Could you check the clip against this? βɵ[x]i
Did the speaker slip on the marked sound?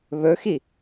no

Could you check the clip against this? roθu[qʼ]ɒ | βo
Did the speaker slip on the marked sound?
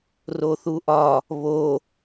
yes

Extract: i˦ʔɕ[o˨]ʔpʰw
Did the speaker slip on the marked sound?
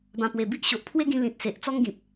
no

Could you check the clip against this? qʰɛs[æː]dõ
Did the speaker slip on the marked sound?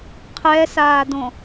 yes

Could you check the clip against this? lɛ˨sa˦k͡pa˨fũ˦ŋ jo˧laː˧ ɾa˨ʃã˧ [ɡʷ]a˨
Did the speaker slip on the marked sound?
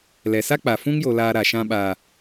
yes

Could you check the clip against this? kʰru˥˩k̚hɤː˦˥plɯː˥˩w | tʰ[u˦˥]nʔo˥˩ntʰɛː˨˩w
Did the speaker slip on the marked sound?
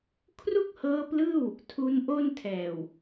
no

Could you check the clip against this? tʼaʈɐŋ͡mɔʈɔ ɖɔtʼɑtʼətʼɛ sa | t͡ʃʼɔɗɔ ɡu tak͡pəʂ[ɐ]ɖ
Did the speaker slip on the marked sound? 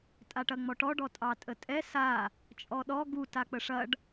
no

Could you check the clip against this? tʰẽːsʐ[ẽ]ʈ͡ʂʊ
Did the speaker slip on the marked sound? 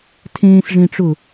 no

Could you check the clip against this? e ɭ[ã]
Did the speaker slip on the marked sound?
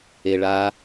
yes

